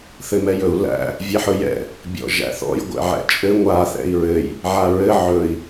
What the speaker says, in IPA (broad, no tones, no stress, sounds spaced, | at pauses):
θ ɘ m ɛ j ɵ u̯ l æ̰ | vʲ ɛ ħ ɵ j ɛ̰ | bʲ ɔ̰ ʒ æ̰ θ ɔ̰ j ɡʷ ɛ̰ ʕ ɛ̰ t͡ʃʼ ɘ ŋʷ a θ ɛ̰ i̯ ɹ ɘ j | ʕ a ɹ ɘ ʕ ɵ i̯